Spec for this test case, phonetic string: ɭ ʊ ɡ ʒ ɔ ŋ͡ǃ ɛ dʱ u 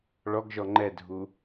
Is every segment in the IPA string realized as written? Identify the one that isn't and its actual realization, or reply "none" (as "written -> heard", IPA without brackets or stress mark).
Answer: ʊ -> ɔ